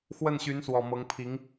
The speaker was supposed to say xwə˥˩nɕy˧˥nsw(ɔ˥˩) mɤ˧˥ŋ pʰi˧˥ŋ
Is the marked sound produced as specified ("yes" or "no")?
no